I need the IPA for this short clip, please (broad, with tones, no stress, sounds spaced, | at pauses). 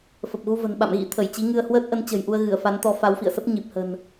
f ə˨˩ p̚ ɣ u˧ v ə̤˨˩ n ɓ a̰˧˨ m ɣ ḭ˧˥ t̪ʰ ə˧˩ j t͡ɕ i˨˦ ŋ ɨ˧ ə̯ h w əː˦˥ t̚ ʔ ə˨˦ n t͡ɕ ə̤˨˩ j ʔ u˧ ə̯ ɣ ɨ˧˩ ə̯ f a˨˦ n t̪ ɔ˨˦ f a˨˦ w f ḭ˧˨ ə̯ s ə˦˥ p̚ ɲ i˨˩ p̚ h ə̤˨˩ n